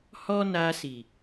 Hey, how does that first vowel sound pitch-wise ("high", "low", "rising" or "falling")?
high